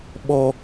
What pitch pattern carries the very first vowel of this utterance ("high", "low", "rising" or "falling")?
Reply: high